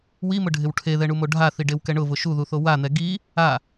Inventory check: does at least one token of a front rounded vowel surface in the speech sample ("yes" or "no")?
no